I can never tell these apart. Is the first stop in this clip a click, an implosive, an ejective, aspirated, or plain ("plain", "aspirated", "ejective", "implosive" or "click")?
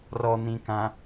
plain